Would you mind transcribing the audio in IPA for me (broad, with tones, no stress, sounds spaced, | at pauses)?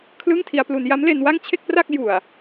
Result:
kʰ l ɯ˥˩ ŋ tʰ i˧ a̯ p l u˧ n j a˦˥ m l e˧ n w a˥˩ ŋ t͡ɕʰ e˥˩ k̚ p r a˥˩ k̚ j u˨˩ a̯